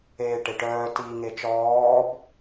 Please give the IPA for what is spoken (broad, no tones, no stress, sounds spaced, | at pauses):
eː ʈ e ʈ œː t iː ŋ e t͡ʃ ɔː b